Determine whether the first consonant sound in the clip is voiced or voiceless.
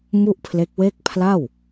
voiced